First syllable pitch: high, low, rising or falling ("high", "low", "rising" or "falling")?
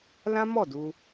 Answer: high